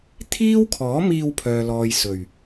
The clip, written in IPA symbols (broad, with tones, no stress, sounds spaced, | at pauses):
t̪ʰ iː˥ w kʰ ɔː˨˥ m iː˧ w pʰ œː˨ l ɔː˨ j s ɵ˨˩ ɥ